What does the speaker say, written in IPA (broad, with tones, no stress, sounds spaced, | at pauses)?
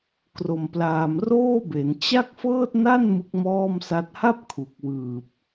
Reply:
k r o˨˩ m p l aː˨˩ m r oː˥˩ b e˩˦ n t͡ɕ a˥˩ k̚ f ɤː˥˩ t̚ n a˥˩ n m ɯ˦˥ k̚ m ɔː˥˩ m s a˦˥ t̚ h a˥˩ p̚ kʰ u˨˩ k̚ w ɯː˨˩ p̚